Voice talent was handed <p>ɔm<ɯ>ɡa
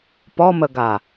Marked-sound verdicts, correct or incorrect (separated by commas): correct, incorrect